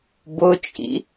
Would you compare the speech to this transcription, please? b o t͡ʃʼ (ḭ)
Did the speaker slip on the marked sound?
no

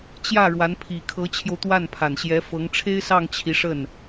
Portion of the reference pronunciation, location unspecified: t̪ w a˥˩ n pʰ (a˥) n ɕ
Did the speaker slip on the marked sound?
yes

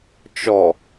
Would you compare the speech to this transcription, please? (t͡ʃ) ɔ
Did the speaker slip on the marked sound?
no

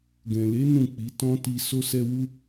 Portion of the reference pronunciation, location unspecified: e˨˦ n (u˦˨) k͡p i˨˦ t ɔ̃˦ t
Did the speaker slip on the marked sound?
yes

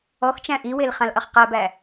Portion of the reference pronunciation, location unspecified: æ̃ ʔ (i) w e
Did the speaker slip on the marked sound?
no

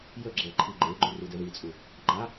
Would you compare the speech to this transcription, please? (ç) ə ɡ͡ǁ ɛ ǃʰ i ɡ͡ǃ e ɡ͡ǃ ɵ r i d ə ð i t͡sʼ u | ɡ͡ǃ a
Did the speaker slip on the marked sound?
yes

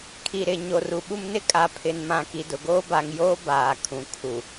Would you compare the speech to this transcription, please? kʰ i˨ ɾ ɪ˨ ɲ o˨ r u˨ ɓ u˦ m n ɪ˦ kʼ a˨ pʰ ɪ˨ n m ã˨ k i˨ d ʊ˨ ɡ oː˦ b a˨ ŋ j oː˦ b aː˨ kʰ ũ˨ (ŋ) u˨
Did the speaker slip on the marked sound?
yes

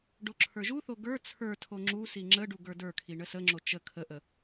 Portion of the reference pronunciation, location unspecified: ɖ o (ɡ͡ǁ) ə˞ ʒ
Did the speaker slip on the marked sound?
yes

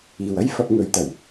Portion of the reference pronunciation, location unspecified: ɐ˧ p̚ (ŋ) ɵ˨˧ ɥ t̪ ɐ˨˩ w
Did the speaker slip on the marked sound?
no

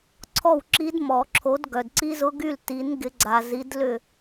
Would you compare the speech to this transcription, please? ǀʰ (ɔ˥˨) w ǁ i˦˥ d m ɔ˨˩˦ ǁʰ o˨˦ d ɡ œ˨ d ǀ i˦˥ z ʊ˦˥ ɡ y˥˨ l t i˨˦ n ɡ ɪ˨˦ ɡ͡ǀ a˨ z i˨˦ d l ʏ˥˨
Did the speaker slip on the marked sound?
no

